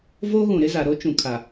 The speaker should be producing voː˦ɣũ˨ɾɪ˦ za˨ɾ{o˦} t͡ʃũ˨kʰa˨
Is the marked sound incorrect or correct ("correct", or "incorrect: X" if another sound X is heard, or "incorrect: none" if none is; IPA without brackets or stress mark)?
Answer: correct